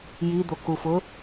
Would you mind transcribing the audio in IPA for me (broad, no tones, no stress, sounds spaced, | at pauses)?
j i d̪ o k u f ʊ